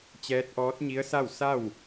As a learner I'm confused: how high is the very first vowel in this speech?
mid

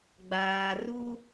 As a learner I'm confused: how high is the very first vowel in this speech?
low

